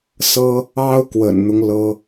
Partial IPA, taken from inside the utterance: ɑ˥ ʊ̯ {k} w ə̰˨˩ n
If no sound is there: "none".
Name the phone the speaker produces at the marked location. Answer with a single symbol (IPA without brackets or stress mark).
k